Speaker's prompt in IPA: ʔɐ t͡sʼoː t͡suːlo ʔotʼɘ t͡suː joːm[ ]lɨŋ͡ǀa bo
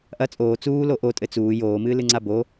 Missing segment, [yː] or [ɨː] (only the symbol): ɨː